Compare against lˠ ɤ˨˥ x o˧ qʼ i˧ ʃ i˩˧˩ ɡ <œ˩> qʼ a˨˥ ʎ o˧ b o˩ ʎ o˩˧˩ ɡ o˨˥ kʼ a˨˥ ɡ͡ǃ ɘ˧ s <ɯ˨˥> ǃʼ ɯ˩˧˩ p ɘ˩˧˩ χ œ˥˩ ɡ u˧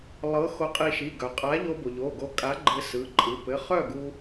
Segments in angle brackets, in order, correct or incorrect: correct, incorrect

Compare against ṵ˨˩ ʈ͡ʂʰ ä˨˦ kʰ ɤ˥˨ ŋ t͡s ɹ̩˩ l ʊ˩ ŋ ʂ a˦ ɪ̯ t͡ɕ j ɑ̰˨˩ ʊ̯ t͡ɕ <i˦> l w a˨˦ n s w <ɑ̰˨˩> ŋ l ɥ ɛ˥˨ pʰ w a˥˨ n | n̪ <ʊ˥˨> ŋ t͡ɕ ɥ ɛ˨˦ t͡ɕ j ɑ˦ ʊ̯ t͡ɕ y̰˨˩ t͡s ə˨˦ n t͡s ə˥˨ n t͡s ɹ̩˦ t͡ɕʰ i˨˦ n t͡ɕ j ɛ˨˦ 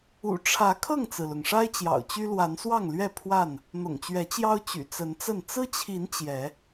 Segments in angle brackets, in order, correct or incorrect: incorrect, incorrect, incorrect

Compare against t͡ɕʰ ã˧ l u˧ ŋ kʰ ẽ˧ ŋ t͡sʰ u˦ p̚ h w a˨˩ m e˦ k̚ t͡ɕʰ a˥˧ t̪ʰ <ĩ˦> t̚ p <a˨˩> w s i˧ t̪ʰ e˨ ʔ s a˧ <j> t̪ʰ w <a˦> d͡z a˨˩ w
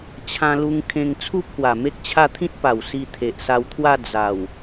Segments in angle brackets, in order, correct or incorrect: correct, correct, incorrect, incorrect

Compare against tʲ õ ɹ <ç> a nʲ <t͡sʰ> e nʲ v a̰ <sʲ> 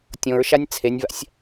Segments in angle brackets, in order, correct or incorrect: incorrect, correct, correct

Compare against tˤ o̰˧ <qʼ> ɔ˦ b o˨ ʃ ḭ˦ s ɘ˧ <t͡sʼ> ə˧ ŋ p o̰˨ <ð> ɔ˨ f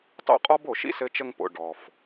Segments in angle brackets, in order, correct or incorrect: correct, incorrect, incorrect

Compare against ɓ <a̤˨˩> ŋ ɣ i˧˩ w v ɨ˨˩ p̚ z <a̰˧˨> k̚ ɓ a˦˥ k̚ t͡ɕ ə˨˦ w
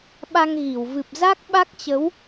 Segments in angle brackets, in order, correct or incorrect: incorrect, incorrect

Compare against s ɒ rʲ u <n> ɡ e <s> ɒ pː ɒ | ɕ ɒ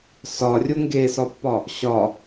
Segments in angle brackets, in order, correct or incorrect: incorrect, correct

